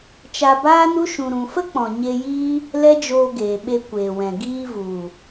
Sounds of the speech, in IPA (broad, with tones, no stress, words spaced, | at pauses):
t͡ʃa˧baː˦nu˦ ʃũ˧ɾũ˧ fə˦k͡pɔ̃˨ ɲe˧jiː˦ | lɛ˦d͡ʒoː˧ɡeː˨ ɓe˧kʷeː˨wɛ̃˨ ɡiː˧vu˨